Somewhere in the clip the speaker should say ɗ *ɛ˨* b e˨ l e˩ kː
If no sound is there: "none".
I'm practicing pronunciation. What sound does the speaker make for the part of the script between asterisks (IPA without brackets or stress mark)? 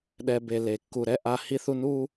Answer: ɛ˨